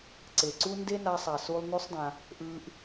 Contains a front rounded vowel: no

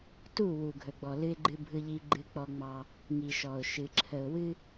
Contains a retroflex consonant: no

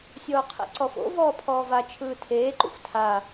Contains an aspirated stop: yes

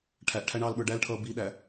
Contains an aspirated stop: yes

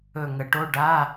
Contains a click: no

